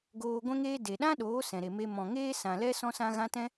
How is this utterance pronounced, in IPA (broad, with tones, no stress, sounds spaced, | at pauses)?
ɡ oː˧ ɡʷ ɛ̃˦ ŋ eː˦ d e˨ ɗ ã˦ ɗ oː˨˦ s ɛ̃˨ ɾ e˨ m e˧ m ɔ̃˨ ŋ eː˦ s ã˨ l ɛ˦ s ɔ̃˦ s ã˦ ɣ ã˦ t ɛ̃˦